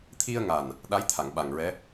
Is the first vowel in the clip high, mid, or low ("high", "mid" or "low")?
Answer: high